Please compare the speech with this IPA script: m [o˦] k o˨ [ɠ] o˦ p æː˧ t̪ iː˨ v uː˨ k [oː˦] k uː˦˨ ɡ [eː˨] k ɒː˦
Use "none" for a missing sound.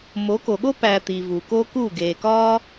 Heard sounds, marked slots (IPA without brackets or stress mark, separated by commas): o˨˦, ɠ, oː˦, eː˨